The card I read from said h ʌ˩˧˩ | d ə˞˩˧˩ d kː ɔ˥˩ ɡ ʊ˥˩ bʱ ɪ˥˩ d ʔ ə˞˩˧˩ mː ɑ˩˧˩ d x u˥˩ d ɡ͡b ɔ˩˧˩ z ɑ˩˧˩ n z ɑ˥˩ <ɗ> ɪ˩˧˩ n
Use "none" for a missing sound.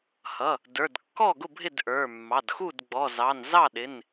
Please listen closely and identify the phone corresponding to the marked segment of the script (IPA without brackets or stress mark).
ɗ